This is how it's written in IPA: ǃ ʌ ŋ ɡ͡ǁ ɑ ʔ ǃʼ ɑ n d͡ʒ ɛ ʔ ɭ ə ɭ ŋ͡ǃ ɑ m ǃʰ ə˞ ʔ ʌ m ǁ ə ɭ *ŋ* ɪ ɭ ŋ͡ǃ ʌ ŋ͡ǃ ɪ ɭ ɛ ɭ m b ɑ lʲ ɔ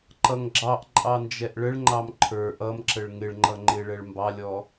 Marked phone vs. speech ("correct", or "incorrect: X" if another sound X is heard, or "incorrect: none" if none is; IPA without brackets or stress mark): correct